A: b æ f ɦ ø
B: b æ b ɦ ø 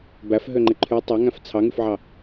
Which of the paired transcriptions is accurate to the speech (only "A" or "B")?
A